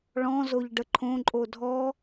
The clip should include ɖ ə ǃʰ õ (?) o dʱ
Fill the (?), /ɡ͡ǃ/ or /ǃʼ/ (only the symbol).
ǃʼ